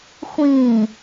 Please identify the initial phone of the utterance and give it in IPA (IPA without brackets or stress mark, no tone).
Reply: xʷ